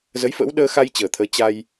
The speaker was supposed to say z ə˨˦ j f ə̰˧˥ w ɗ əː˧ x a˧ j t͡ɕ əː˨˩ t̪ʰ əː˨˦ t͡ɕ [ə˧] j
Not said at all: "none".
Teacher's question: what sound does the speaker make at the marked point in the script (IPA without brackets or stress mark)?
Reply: a˧